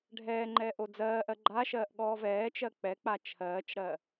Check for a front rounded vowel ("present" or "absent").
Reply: absent